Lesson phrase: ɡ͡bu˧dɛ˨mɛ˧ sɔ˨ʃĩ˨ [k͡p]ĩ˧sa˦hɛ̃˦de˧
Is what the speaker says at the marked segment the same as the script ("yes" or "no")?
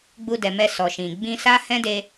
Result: no